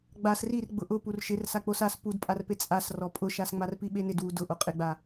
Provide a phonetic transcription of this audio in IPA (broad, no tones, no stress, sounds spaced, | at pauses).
ɡ͡b a s r i r ɡ͡b ʊ ʔ ʊ p u r ʃ ɪ r s a k͡p o s a s p u d pʼ a r p e t͡sʼ a s r ɔ pʼ ʊ ʃ a s ŋ͡m a r p i ɓ e n ɪ d w u d ʊ ʔ o qʼ ɪ ɡ͡b a